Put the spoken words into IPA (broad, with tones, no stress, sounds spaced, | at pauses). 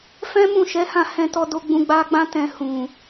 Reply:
f ɛ̃˦ m ũ˦˨ ʃ ɛ˨˦ h ã˦˨ h ɛ̃˧ t ɔ˧ d o˧ ɡ͡b ũ˧ ɡ͡b a˧ ɡ͡b ã˦ t ɛ̃˧ h ũ˨